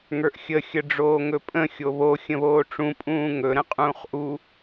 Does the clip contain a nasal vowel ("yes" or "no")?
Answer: yes